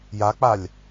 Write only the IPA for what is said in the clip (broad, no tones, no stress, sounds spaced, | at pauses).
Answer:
j a k͡p a lʲ